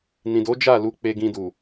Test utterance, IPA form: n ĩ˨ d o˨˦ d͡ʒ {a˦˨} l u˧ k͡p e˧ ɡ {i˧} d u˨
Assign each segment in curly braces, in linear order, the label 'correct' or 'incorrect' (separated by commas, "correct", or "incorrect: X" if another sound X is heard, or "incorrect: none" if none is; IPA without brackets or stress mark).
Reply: correct, incorrect: ĩ˧